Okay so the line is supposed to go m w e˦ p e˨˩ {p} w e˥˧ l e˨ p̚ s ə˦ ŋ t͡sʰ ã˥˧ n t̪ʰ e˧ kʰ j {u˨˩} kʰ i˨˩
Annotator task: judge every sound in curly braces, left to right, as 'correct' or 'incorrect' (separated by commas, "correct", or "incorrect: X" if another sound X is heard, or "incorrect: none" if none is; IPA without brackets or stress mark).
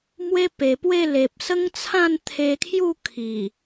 correct, incorrect: u˥˧